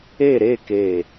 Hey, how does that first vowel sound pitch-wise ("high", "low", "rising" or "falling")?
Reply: falling